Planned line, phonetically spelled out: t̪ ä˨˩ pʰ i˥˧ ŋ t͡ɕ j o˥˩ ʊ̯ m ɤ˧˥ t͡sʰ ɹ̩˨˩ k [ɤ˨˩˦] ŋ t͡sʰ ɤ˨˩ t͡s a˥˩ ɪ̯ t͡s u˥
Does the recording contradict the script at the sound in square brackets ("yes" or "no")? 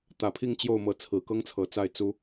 yes